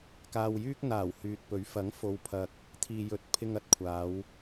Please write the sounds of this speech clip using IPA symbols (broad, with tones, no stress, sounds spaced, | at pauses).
k aː˧ w j yː˥ k̚ n̪ aː˨˩ w h yː˨ t̚ p ɵ˨˥ ɥ f ɐ˨˥ ŋ f o˨ w pʰ ɐ˨ k̚ | t̪ʰ iː˨ j ɵ˨˥ t̚ pʰ ɪ˧ ŋ ɐ˨ t̚ kʷʰ aː˨˧ w